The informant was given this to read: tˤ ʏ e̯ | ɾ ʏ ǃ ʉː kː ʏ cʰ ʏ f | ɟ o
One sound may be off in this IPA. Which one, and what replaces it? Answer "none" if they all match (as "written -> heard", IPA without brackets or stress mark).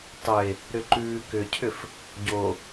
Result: kː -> k